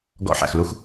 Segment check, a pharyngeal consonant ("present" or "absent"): present